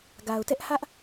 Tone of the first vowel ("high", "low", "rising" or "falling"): low